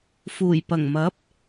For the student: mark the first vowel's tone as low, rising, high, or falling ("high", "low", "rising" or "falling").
low